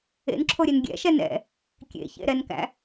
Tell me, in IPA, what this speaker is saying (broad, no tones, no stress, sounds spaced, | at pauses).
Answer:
ḛ n ǁʰ o ɾʲ e n ɡʲ ɛ̰ ʃ ɛ n ɛ̰ | kʲ ḛ ç ḛ ɾ ɛ n k æ̰